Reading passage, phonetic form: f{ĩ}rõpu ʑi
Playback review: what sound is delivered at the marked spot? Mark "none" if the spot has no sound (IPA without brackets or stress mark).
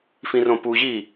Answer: ĩ